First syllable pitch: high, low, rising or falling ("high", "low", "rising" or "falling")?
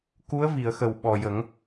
rising